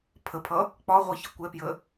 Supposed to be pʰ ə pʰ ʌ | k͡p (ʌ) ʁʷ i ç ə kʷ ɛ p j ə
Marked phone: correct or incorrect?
incorrect